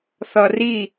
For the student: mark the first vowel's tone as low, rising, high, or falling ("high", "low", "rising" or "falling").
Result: low